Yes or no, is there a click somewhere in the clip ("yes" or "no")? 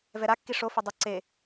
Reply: yes